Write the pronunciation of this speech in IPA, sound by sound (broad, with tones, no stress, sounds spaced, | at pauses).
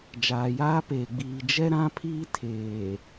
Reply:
d͡ʒ aː˨ j aː˦ p eː˨ ɡ͡b iː˨ d͡ʒ ɛ˦ ɾ ã˦ pʰ iː˦ tʰ eː˨